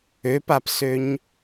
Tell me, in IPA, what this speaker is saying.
ø p a p s ø ɲ

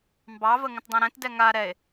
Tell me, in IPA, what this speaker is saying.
m b ɑ v ə ŋ ə̃ t dˤ ẽ ɾ ɛ̃ t d ɛ ŋ a ɾ ɛ e̯

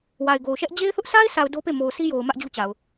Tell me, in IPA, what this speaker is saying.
w a˨ ɪ̯ ɡ o˨ ʊ̯ ʃ ɛ˦ ʔ d͡ʑ e˦ ɪ̯ θ ʊ˦ ʔ s a˦ ɪ̯ sʰ a˨ ʊ̯ d o˦ p e˦˨ m o˨ ʊ̯ s i˦ j o˨ ʊ̯ m ä˦ ʔ d͡ʑ u˦ t͡ɕ a˨ ʊ̯

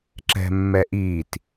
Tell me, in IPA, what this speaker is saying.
ǁ ɛ̤ mː ɛ ʔ iː t

